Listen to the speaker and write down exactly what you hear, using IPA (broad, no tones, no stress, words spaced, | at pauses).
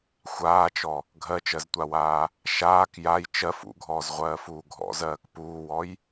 xʷaːt͡ʃɔ | ɡʱɜt͡ʃɜztʷawaː | ʃaːk jaj t͡ʃɜf ṵɡʱɔːzʁʷɜːfuː ɡʱɔ̰zɜːk puːwɔj